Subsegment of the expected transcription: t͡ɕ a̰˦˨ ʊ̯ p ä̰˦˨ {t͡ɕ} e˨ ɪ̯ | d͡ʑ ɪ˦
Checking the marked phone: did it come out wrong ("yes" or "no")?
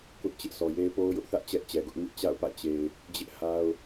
no